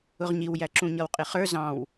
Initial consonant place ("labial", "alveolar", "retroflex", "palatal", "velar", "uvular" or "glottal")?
uvular